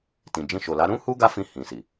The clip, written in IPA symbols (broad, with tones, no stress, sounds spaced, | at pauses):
t ĩ˨ d͡ʒ ĩ˧ ʃ o˨ l a˨˦ ɾ ũ˦ h u˦ ɡ a˦ f ĩ˧ h ĩ˨ s i˨